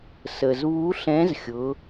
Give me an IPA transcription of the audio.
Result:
s ə˩ z β u˧˥ ɬ ɛ̃˧˥ z xʲ ʊ˩˧

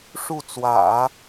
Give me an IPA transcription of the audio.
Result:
ʂ u˥˩ t͡s w ä̰˨˩˦

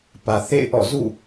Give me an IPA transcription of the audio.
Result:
p ä˨ θ ḛ˦˨ ɪ̯ ʔ ɔ̰˦˨ z ṵ˦˨

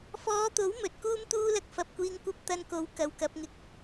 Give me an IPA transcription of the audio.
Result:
f ɔː˨˧ t̪ o˨˥ w m ɵ˨ t̚ k uː˥ m t̪ uː˥ l ɐ˧ k̚ f ɐ˨ p̚ kʷ iː˧ ŋ kʷ ɐ˥ p̚ t̪ ɐ˧ n k o˨˥ w k ɐ˨˧ w k ɐ˨˥ p̚ ŋ ɪ˨ k̚

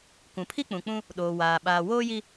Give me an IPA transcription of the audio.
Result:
kʷ ũ˨ pʰ i˦ k͡p ũ˨ k͡p ũ˦ | ɗ oː˨ w aː˨ ɓ aː˨ w oː˦ j i˦

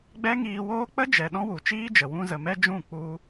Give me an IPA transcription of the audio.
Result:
ɡ͡b ɛ˦ ŋ iː˧ w oː˦ k͡p ə˦ d͡ʒ ɛ˨ ɗ ɔ̃˦ w u˨ t͡ʃ iː˦ d͡ʒ ə˨ w ũ˧ z ə˨ m ɛ˦ d͡ʒ ũ˦˨ k͡p u˧

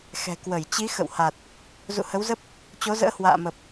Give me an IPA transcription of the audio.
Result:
x ɛ̤˨˩ k w ə˧˩ j t͡ɕ i˨˦ x ə̰˧˨ w h a˨˩ t̚ | z ṵ˧˨ h ə˨˦ w z ə˦˥ p̚ | t͡ɕ o˨˦ z ə̰ː˧˥ h w a̰ː˧˨ m ə˨˩ p̚

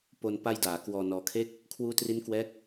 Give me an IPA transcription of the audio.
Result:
p o˧ n p a˧ j d aː˩˦ k w ɔː˧ n ɔː˧ kʰ e˥˩ k̚ | kʰ w uː˦˥ t r i˦˥ n k w ɛː˦˥ k̚

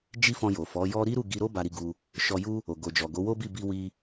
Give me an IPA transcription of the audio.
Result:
d͡ʒ i˦ f ɔ̃˧ j o˨ f ɔ˨˦ j ɔ˦ ɾ i˦ ɾ u˦˨ ɡ i˧ ɾ o˦ b a˧ ɾ i˧ ɡ u˧ | ʃ ɔ˧ j u˦ | o˨ ɡ o˨ d͡ʒ ɔ˨ ɡ o˨˦ w o˦ b i˦˨ b i˧ w i˧

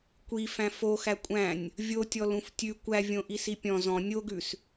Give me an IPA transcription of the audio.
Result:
kʷ i f æ̃ f o x æ kʷʼ æ̃ nʲ | vʲ o tʲ ɔ l ũ f tʲ ʉ kʷ æ vʲ õ ʔ i s i pʲ ɔ̃ z ɔ̃ nʲ o ɡ ʉ s

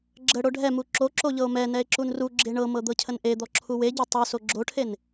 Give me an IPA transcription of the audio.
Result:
ɡ͡ǁ ə ɽ o ɖʱ ɛ m u ǁ o ǁ o ʎ ɤ o̯ m ɛ n ɛ e̯ ǁ u n r u ɡ͡ǁ e ɳ ɤ m ɤ d̪ ɤ cʰ ə n ʔ e d̪ ɔ ǁʰ u w e ɟ e tˤ u s o ɡ͡ǁ o ʈʰ e n

